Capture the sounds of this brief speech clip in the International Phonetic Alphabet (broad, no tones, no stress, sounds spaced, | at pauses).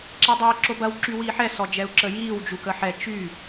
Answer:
ǁ ɛ dˤ eː ǁ o b ɐ w ǁ y w iː ħ ɛ s ɔ d͡ʒ ɛ u̯ ǁ ə j iː w d͡ʒ u k ə ħ ɛ t͡ʃ y